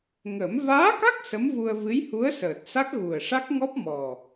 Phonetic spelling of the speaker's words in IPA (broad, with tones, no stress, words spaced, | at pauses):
ŋə˨˩˦m vaː˧˥ka˦˥k̚ sə˧˥mvu˧ə̯ vɨ˧˥jhu˧˥ə̯səː˨˩t̚sa˦˥k̚ ɣu˨˩ə̯ʂa˦˥k̚ŋɔ˦˥p̚ mɔ˨˩